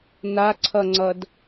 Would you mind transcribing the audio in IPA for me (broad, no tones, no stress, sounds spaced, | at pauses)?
n̪ a ǀʰ ʌ ŋ͡ǀ ʌ d